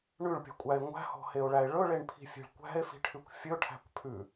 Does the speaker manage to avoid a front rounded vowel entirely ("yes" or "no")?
yes